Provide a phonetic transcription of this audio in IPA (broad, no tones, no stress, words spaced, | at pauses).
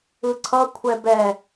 ɯǀʰʌ kʷʰɛbɛ